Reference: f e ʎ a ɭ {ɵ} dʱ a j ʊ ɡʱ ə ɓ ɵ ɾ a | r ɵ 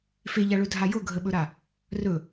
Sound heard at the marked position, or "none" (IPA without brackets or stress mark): ɵ